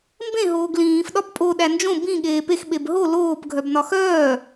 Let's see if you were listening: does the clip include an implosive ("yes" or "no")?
yes